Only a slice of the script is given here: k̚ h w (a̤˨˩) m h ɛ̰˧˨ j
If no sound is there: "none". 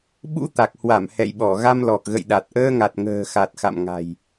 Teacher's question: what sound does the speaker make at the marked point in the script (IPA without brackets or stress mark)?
a˧˩